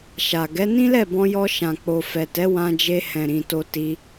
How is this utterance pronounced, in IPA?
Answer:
ʃa˨ɡɛ˨˦ nĩ˦lɛ˦˨bɔ̃˧jɔ˧ ʃã˨k͡po˨fɛ˨tɛ˨˦ wã˧d͡ʒe˧ hɛ̃˨ɾĩ˨ to˧ti˧

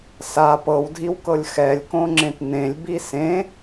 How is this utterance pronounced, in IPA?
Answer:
sa pɤwdʱiwkɤlʲ xɛlʲkõŋ͡ǁẽt nẽlʲbi sẽ

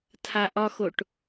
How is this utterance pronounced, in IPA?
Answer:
tʰaʔɒxoʈ

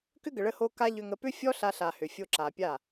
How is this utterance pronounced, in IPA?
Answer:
kʏ˦ɡə˨ɭə˧ho˧ ka˦ʎʏ˧ŋə˧ pʏ˦fʲɔ˦ ɬa˧ɬa˨ hʏ˨fʲo˧ǁa˨pʲa˦˨

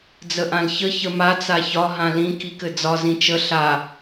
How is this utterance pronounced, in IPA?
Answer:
d͡zəʔãlçə çəmat͡s açɒ ɦãlĩ kikɘd͡zɒ zĩt͡ʃə ɬa

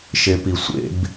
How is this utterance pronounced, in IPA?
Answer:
ʃepisʷḛb

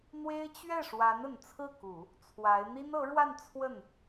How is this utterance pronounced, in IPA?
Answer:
n̪we˥ɪ̯ t͡ɕɥɛ˥˩ʂwa˧˥n ə˨˩n t͡sʰɹ̩˥˩ku˨˩˦ | t͡sʰwa˧˥ɪ̯ n̪i˥nɤ˧˥ɻwa˥˧n t͡sʰwə˥˩n

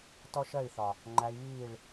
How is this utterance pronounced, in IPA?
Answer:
tɔ˦ʃɜ˦˨i̯θɒ˨ | ŋ͡ǃæ˧i̯βiː˦˨ɭ

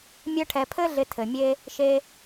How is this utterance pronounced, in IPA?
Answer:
mʲœ˧ʈʰɛ˨pʰɘ˦ ɮɪ˧tʰɘ˨mʲe˦ | ʃe˧

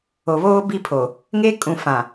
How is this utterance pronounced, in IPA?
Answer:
o˨βoː˦ bi˦pʰo˨ | ŋe˦kʼũ˨ fã˨

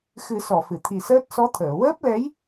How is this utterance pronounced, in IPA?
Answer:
xɨ˨˩˦sɔ˨˩˨ fɨ˨˩˨t̪ʰi˨˩səː˦˥t̚ sɔ˧˥t̪ʰəː˨˩˨ wəː˦˥p̚lɛ˧˥j

